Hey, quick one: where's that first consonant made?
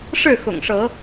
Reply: retroflex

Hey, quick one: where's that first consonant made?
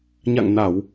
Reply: palate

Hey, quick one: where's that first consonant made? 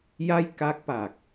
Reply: palate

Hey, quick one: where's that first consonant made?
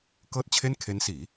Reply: velum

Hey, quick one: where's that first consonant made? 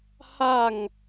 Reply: throat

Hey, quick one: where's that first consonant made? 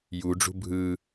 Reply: palate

